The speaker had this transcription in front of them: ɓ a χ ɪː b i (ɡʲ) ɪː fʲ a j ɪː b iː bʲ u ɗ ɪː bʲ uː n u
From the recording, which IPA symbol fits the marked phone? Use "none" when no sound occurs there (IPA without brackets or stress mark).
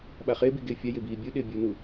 ɡ